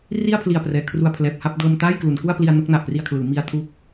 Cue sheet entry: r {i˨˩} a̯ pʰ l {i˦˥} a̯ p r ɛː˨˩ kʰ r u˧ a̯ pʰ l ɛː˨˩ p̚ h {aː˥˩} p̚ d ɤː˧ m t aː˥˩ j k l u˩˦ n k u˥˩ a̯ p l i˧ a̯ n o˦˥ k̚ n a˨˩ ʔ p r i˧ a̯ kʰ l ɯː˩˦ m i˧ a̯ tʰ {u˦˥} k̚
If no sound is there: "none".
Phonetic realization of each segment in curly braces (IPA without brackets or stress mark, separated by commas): i˥˩, i˨˩, a˥˩, u˦˥